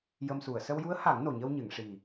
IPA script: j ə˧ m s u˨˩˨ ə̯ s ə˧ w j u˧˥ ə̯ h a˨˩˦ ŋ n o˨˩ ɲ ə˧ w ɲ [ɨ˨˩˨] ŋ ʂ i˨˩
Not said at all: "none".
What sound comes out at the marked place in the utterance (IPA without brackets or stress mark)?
ɨ˨˩˨